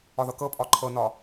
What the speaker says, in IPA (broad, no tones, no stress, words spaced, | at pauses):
ɒðɤkɤpʼɒ ǃʰɤnɒ